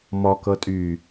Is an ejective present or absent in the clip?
present